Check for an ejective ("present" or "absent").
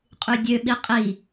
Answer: present